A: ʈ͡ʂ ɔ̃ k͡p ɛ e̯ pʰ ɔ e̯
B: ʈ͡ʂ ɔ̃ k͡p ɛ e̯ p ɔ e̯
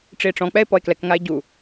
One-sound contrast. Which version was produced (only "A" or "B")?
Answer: B